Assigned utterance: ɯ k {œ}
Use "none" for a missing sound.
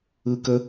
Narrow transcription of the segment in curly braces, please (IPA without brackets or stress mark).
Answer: ə